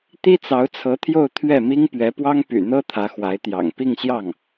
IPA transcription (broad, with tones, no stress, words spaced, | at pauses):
t̪i˥t͡sɑ˧˥ʊ̯t͡sʰɤ˧˥t̪ʰjo˥˧ʊ̯ t̪ʰɥɛ˥˩mi˥ŋ pɥɛ˧˥pwɑ˥ŋpy̰˨˩n̪ɤ˥ t̪ʰä˧˥xwa˧˥ɪ̯t̪jɑ̰˨˩ŋ pi˥˧ŋɕjɑ˥˩ŋ